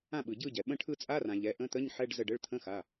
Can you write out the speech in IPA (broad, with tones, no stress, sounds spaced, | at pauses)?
ã˦˨ ɓ ɯ˩ ɟ ɯ˦˨ ɟ ɛ˩ ɓ ə̃˦˨ ʈʰ ɯ˦˨ t͡sʼ a˧˥˧ r ã˩ ʎ ɛ˩˧˩ ʔ ə̃˧˥˧ t̪ ə˧˥˧ ɲ ħ ɛ˧˥˧ ɖ z ə˦˨ ɖ ə˧˥˧ ɭ t̪ʰ ə̃˧˥˧ x a˩˧˩